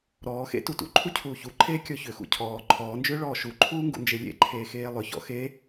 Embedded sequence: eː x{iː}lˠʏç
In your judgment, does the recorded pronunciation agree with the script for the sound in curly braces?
no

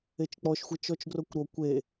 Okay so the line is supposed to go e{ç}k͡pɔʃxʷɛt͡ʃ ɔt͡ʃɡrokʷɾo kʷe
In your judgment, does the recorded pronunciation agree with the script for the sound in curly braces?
no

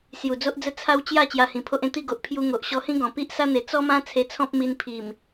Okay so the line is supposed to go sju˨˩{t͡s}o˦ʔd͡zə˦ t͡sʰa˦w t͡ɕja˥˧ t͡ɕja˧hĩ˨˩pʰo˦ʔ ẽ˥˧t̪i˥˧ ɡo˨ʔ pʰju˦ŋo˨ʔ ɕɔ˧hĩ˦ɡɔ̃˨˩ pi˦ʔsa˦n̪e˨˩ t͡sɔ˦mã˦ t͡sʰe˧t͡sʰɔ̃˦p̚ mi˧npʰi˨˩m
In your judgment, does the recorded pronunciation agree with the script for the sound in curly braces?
no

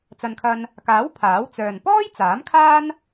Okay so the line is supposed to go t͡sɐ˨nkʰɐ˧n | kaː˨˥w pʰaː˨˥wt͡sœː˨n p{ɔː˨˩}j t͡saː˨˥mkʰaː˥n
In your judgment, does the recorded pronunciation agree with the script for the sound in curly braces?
no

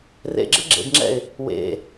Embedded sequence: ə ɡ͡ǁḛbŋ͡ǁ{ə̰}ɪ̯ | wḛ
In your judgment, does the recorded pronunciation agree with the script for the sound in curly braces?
no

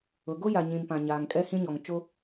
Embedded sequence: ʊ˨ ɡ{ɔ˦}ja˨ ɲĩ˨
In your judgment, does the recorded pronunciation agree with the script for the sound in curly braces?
no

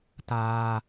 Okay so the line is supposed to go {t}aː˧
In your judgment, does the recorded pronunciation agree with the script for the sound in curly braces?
yes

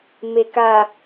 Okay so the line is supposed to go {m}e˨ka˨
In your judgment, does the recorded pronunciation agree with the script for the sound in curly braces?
yes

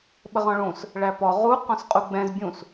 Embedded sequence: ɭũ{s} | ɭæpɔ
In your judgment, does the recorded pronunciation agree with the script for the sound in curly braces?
yes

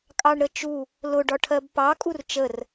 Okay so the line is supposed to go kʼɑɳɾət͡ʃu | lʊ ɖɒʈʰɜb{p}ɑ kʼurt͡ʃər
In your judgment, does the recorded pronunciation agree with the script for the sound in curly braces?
yes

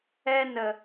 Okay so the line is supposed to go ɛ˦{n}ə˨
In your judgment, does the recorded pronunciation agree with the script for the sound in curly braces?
yes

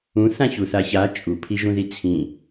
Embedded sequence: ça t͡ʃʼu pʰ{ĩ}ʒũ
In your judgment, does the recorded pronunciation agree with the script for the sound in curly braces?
no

